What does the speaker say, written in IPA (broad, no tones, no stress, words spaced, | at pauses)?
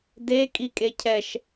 dekʼi kʼecʰɛʃ